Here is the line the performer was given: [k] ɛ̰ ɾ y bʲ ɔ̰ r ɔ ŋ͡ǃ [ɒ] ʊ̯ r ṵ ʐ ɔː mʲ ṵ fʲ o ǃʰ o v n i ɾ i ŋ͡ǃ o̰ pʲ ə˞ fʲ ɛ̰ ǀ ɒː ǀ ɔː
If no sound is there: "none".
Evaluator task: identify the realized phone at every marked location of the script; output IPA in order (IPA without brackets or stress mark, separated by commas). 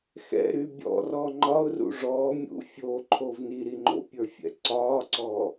x, ɒ